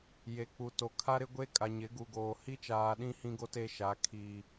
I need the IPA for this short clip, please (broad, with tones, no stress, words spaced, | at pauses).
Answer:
je˨k͡pu˨to˨ kʰa˦ɾɪ˦ɡʷe˦ kʼa˨ɲɪ˨˦ɡu˨ɡoː˨ hi˦t͡ʃaː˨ɗĩ˦ hĩ˦ɡo˦te˦ʃa˨˦ kʰiː˦